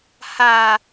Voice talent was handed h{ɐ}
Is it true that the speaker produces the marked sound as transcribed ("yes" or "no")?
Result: no